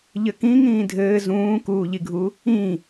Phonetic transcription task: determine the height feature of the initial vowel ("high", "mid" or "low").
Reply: mid